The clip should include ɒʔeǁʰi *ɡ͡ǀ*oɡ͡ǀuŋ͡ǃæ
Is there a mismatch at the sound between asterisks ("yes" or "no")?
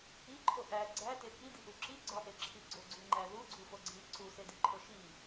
no